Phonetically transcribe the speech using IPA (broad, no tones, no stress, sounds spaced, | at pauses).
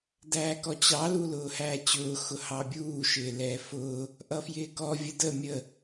d æː k ɔ t͡ɕ ɑ l u l ʊː h æː t͡ɕ ʊː x ʊ h ɑ bʲ uː ʃ ɪː l ɛː f ʊː | ʔ ʌ f j ɪː k ɔ vʲ ə d ə mʲ ə